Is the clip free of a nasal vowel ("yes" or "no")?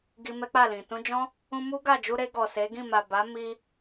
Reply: no